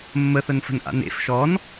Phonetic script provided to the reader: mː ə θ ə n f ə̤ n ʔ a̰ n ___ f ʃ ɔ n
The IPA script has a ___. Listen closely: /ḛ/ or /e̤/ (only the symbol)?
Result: ḛ